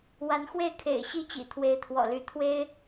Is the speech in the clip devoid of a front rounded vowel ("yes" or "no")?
no